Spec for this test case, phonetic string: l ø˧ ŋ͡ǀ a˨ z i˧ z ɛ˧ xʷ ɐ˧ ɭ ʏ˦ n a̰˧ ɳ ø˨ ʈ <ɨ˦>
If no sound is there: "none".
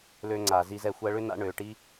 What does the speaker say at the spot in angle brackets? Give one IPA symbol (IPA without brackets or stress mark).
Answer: i˦